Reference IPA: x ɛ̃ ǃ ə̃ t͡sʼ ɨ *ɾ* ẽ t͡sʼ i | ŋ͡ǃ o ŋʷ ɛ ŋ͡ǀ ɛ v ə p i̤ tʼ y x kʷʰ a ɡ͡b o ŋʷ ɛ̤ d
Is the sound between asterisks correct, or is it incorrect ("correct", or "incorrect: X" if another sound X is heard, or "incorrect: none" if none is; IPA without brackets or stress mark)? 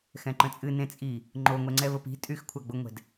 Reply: incorrect: n